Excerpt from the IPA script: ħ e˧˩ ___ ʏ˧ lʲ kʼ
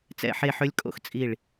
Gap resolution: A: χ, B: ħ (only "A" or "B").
B